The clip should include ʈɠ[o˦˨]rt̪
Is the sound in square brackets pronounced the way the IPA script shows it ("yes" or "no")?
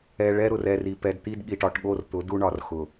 yes